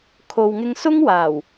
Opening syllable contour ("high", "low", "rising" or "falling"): low